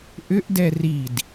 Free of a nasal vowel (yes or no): yes